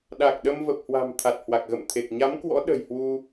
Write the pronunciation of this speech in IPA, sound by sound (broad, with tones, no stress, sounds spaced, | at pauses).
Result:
ɗ a˨˩ k̚ ɗ ə˧ m v ə˨˩ p̚ h w a̤˨˩ m t̪ʰ a˨˩ t̚ h w a˨˩ k̚ ɣ ə̰˧˨ m t̪ʰ e˨˩ k̚ ɲ a˨˦ m k w ɔ̰˧˥ ɗ ə̤˨˩ j h w u˧